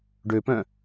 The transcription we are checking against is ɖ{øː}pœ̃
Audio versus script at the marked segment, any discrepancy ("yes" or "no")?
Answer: yes